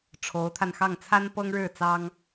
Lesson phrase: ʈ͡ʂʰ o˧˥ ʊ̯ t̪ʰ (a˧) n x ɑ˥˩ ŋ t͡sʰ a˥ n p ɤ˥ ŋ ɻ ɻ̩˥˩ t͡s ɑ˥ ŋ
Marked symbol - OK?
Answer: yes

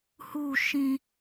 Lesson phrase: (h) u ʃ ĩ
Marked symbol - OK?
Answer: yes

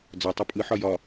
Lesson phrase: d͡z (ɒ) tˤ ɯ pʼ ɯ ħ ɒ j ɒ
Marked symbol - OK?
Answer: yes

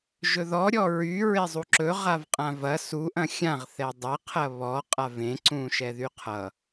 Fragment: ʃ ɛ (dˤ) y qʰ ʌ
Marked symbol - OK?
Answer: no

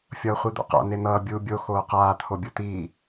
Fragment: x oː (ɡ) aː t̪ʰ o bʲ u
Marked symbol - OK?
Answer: no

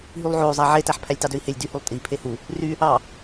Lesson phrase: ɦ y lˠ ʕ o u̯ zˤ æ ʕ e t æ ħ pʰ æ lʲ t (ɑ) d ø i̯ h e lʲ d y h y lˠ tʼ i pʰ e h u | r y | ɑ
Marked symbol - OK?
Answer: yes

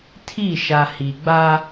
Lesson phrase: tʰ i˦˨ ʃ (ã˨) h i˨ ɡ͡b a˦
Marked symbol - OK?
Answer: no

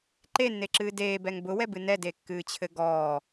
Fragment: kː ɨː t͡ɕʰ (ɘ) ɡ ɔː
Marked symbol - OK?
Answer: yes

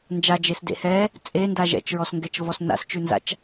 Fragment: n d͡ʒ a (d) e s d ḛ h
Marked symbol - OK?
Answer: no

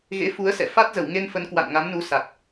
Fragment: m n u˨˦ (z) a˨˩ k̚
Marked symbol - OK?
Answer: no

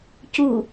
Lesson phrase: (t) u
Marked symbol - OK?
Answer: no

